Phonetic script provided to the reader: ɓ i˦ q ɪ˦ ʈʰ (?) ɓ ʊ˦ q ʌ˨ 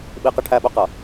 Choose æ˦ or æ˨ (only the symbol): æ˦